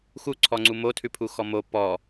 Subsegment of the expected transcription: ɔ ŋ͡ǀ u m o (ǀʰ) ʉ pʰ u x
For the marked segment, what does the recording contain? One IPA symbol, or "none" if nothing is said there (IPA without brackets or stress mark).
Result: tʰ